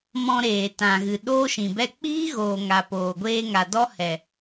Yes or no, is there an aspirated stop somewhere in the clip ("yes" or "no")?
no